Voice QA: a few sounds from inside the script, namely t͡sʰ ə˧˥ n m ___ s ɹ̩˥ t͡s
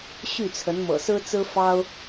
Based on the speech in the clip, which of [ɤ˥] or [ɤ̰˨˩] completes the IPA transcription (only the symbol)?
ɤ̰˨˩